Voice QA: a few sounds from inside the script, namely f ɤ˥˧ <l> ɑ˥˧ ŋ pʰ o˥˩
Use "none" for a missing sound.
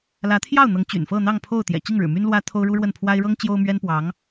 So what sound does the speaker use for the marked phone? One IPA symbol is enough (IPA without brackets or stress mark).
n̪